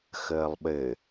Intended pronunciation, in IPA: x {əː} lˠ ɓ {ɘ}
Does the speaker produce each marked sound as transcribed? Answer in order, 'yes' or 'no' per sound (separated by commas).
yes, yes